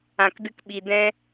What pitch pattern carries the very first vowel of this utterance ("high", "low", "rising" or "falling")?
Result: low